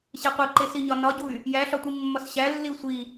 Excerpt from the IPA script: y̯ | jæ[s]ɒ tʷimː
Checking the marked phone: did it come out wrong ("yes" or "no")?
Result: yes